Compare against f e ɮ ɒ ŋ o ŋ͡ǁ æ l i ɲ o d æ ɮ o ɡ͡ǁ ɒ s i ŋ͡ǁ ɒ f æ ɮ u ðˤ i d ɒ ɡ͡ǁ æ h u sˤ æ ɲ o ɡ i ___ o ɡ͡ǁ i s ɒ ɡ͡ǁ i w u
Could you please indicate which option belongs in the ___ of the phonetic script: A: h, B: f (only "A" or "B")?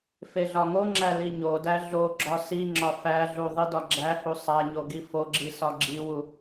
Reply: B